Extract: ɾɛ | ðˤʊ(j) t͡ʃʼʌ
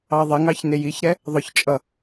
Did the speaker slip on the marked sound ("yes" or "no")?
yes